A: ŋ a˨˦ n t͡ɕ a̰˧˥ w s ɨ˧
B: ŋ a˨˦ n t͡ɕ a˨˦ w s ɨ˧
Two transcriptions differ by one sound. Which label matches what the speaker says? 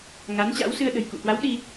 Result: A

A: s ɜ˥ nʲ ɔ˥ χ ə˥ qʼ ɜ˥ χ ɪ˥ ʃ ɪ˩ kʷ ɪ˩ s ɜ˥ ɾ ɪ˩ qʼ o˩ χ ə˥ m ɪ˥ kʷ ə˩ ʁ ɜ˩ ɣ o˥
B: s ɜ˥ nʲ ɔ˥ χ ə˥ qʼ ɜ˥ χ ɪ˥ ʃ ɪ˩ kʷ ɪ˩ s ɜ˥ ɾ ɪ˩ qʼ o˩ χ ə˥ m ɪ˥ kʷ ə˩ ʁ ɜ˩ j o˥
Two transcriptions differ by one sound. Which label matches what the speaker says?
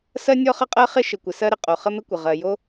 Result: B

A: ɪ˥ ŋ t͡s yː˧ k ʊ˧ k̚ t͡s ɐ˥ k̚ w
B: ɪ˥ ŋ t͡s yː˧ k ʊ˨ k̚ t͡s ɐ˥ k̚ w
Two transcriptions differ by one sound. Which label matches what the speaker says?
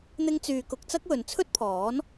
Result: A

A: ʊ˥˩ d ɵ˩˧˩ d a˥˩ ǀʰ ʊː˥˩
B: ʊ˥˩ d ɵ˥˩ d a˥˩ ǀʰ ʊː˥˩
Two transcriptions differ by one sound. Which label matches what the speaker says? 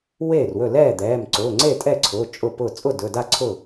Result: A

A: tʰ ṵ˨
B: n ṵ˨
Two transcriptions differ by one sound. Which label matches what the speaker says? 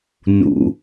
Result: B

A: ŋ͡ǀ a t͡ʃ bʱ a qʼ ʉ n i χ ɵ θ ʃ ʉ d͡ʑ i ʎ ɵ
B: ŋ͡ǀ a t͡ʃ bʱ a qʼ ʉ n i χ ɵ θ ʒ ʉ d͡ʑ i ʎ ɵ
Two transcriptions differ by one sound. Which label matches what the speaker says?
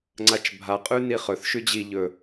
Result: A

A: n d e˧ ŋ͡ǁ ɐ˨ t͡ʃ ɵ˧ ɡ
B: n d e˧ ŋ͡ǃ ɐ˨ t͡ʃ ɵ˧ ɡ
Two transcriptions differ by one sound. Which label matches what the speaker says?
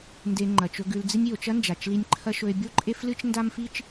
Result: B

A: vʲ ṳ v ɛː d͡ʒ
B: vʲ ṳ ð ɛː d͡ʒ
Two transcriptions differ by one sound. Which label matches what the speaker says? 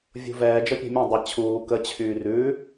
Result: A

